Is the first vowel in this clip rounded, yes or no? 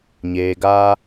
no